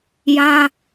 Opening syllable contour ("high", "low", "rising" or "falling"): high